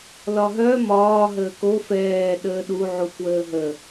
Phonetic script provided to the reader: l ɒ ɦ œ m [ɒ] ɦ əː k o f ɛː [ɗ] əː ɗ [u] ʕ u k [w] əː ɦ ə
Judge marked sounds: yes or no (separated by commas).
no, yes, yes, yes